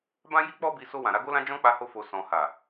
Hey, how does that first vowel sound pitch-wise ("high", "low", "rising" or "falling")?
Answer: high